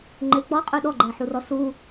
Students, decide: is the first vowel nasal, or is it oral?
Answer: oral